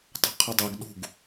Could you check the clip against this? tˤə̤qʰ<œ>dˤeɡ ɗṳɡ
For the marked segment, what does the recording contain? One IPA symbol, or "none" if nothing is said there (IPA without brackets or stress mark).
ə